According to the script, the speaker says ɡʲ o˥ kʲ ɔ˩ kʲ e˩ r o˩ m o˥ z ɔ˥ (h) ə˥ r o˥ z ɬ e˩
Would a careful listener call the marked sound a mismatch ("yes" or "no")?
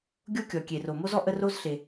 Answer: yes